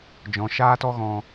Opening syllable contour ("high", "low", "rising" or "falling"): low